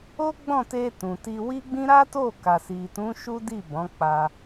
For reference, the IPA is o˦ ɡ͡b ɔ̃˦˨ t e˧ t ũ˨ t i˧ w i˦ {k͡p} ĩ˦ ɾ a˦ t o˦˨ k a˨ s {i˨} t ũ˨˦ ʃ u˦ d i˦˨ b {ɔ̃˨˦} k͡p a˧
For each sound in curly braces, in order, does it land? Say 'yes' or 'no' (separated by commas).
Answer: no, yes, yes